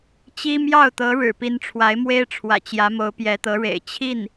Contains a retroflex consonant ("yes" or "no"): yes